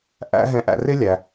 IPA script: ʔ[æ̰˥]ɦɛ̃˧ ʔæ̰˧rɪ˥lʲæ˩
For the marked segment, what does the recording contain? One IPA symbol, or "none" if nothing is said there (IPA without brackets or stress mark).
æ̰˥